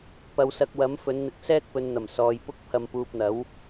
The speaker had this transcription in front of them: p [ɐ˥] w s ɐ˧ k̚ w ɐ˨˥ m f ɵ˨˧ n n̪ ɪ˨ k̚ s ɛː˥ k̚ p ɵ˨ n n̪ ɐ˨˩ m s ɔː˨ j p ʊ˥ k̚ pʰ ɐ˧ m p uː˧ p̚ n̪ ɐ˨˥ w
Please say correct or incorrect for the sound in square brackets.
incorrect